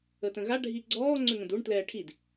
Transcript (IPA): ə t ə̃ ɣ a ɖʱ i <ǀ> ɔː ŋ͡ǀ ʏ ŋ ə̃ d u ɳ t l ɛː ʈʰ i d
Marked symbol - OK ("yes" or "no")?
no